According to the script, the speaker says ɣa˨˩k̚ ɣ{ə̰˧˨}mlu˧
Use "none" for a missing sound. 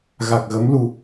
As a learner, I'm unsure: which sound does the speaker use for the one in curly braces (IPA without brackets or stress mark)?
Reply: ə˨˦